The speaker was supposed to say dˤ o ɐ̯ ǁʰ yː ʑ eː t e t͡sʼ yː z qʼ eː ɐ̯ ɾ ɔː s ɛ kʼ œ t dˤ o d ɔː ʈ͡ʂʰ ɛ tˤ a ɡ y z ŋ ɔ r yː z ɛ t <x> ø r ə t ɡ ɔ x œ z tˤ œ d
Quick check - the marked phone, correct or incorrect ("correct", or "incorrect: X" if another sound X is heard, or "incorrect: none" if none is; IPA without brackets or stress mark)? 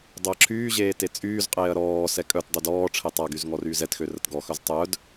correct